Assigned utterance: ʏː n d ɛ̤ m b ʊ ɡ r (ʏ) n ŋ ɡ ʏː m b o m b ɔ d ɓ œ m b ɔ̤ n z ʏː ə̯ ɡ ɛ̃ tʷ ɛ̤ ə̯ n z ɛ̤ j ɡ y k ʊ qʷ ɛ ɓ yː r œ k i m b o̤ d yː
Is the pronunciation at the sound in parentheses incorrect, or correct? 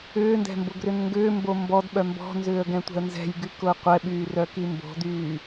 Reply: correct